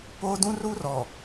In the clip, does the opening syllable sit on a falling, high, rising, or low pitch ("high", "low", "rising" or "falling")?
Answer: high